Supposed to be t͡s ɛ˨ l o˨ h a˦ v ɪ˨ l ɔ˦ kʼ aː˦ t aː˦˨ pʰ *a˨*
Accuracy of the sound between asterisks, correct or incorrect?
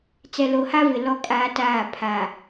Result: correct